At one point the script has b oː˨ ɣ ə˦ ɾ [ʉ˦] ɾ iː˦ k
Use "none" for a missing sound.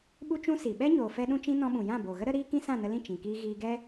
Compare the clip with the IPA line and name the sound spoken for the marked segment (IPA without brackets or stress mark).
ə˦